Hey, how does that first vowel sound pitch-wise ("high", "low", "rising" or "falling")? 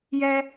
high